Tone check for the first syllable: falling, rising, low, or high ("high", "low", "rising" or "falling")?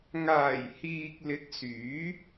low